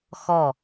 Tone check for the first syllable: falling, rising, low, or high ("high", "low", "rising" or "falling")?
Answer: falling